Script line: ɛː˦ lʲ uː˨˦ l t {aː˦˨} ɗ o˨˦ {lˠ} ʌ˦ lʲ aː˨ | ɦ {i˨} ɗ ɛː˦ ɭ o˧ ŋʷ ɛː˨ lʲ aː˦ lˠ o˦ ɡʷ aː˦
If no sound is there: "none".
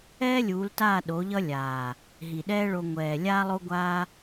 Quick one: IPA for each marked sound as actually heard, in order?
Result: aː˦˨, ʎ, i˨

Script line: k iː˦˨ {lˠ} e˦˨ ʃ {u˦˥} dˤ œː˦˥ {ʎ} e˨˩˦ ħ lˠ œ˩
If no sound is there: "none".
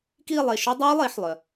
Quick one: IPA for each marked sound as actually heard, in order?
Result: lˠ, ø˦˥, lˠ

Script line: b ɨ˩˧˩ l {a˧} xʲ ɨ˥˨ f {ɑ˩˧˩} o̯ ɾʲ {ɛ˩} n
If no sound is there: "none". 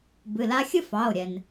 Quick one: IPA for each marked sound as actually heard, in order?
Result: a˧, ɑ˩˧˩, ɛ˩

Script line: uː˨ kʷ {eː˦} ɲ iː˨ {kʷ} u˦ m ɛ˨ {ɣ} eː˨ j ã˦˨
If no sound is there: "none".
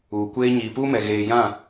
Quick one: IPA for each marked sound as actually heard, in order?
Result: eː˦, p, ɣ

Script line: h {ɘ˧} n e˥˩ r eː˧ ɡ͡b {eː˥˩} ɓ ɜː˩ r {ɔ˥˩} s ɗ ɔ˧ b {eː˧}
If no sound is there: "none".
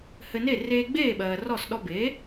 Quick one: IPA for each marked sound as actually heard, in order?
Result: ɘ˧, eː˥˩, ɔ˥˩, eː˩˥

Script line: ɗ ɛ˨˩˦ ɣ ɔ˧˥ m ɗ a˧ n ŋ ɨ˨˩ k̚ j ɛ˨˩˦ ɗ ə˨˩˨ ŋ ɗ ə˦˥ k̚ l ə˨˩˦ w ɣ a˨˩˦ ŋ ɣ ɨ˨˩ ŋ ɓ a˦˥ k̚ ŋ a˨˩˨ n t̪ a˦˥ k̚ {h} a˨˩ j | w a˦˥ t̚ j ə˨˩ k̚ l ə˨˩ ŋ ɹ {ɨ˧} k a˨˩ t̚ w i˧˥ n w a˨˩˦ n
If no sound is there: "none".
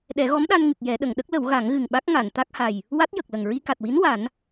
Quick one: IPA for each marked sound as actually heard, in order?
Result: h, i˧

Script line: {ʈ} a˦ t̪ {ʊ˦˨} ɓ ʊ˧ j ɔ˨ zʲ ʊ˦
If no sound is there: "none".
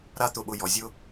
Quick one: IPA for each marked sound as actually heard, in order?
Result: ɾ, ʊ˧

